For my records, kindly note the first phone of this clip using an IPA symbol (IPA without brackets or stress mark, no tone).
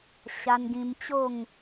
ɕ